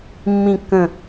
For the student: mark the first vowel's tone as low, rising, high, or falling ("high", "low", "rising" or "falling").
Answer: low